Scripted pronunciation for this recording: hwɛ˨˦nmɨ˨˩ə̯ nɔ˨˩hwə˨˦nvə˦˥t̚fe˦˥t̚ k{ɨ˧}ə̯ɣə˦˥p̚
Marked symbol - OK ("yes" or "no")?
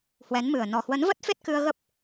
yes